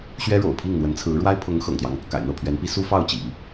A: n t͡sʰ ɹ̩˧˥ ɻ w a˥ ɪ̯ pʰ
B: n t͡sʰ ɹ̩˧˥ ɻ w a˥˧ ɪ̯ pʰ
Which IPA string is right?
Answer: A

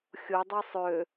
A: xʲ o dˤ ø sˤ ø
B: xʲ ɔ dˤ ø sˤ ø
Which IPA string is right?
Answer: A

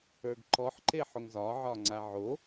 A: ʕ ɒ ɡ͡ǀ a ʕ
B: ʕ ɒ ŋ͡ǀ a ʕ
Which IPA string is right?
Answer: B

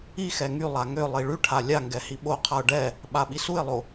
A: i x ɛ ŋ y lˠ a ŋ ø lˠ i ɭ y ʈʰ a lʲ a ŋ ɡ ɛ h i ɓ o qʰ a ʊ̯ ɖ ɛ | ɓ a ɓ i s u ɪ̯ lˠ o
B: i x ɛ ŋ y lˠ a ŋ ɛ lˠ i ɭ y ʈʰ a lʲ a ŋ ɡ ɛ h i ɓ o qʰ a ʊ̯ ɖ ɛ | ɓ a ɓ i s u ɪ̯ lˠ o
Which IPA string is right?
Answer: A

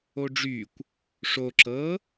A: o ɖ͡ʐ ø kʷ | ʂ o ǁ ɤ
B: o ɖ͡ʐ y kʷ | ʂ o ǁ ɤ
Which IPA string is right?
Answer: B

